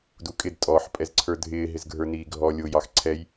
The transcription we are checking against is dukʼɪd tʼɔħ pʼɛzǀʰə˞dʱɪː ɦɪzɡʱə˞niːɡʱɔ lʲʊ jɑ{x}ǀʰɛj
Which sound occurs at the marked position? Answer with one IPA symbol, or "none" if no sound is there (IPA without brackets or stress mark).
x